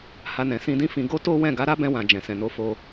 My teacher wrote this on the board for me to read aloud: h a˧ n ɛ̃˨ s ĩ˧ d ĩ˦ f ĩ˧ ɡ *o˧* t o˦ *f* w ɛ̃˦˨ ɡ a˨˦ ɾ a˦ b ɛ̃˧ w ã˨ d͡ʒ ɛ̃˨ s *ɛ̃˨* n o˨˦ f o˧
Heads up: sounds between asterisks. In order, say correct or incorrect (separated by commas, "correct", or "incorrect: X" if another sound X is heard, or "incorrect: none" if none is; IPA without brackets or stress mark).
incorrect: o˦, incorrect: none, correct